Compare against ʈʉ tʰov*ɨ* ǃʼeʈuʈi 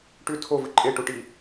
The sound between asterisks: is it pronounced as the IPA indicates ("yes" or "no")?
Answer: yes